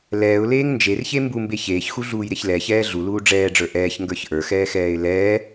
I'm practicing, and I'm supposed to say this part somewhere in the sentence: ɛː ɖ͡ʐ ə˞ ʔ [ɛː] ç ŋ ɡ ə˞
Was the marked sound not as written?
no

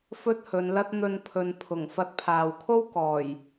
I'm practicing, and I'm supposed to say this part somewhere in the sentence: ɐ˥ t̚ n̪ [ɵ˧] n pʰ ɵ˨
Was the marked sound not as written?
no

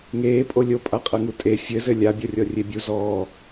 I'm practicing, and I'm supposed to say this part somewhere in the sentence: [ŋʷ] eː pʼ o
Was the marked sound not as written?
yes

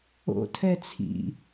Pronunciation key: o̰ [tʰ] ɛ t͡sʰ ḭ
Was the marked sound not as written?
no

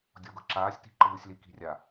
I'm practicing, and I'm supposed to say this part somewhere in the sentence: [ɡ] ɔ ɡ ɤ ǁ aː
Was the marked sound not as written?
yes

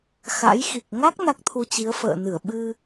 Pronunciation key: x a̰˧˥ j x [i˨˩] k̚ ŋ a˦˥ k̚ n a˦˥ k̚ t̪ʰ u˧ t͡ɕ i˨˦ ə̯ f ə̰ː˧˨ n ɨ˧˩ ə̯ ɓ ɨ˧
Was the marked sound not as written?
no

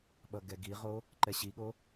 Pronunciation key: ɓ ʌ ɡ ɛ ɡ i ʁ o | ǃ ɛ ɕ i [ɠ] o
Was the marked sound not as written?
no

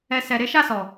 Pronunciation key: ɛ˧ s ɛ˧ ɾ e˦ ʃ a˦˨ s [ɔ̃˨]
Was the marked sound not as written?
yes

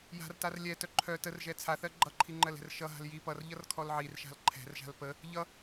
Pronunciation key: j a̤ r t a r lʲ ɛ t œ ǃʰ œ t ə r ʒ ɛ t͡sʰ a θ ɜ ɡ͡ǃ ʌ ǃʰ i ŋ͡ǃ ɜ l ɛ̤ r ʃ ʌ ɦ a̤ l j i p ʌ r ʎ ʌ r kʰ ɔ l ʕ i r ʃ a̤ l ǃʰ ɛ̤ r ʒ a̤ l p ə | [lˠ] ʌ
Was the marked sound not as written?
yes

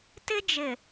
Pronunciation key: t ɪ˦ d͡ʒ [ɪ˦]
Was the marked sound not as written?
yes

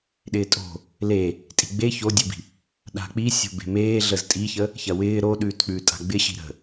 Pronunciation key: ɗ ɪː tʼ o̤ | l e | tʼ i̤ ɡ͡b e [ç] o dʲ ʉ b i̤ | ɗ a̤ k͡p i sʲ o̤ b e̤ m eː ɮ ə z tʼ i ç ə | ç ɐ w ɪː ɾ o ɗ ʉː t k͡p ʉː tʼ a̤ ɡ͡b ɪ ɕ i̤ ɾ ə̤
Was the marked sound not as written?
no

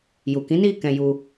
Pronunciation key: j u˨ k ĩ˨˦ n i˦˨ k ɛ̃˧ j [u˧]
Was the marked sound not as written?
no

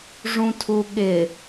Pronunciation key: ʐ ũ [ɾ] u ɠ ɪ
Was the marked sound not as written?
yes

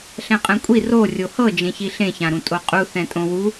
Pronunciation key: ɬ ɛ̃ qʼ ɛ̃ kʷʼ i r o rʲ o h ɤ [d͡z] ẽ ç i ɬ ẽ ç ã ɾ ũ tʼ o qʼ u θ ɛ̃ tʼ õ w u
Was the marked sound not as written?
yes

